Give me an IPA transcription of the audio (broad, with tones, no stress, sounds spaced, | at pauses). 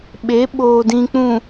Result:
ɓ e˨˦ ɓ oː˨ d ĩ˨ k͡p ũ˨